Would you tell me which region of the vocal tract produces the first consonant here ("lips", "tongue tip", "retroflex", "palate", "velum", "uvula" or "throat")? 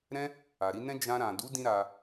tongue tip